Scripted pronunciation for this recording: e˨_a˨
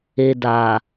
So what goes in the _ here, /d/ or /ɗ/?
d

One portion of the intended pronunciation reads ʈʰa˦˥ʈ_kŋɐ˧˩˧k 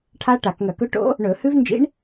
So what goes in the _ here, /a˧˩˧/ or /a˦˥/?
a˧˩˧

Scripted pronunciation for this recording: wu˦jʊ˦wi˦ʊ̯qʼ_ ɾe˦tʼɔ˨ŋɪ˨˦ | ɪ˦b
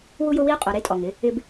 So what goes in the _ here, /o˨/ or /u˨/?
o˨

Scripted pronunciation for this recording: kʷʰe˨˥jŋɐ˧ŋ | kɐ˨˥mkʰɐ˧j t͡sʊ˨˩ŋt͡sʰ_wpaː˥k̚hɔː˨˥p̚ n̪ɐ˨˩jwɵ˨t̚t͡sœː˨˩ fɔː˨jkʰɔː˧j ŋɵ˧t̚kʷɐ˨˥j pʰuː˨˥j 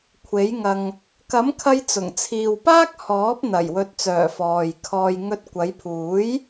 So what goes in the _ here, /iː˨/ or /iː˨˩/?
iː˨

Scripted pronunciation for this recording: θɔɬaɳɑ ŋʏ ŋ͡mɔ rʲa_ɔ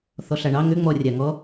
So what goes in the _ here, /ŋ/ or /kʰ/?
ŋ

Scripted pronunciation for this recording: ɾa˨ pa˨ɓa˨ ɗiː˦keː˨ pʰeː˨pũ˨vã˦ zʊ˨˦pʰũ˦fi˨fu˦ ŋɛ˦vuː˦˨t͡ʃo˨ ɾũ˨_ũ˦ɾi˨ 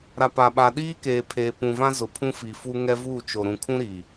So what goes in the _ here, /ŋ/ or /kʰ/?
kʰ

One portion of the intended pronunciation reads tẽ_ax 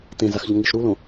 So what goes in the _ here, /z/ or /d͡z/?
z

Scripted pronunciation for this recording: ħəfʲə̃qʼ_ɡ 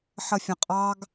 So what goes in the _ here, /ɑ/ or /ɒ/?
ɑ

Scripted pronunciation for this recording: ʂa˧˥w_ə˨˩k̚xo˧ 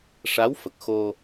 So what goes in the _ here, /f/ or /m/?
f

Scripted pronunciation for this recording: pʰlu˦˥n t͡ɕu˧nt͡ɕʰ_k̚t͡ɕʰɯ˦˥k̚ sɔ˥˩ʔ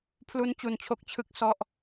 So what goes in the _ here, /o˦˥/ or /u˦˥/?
o˦˥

